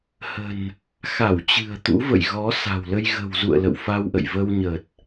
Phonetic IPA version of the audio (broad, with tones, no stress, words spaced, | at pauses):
hə̤˨˩n | xa˧˩wt͡ɕɨ̤˨˩ə̯ t̪ṵ˧˥və̰˧˨j ɣɔ˨˦ sa̤˨˩wlə˧j ɣə̤˨˩wzṵ˧˨ə̯ lə̰˧˨wfa˧wʔə̰˧˨j və˧wɲə˨˩t̚